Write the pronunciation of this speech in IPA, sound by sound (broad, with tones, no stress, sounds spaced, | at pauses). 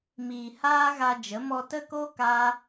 m iː˨ h aː˦ ɣ a˧ d͡ʒ ə˨˦ m ɔ˧ t ə˦ k o˦ k aː˦